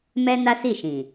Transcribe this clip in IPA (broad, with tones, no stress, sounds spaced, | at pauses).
m ɛ˦ n a˦ s i˦˨ ʃ ĩ˨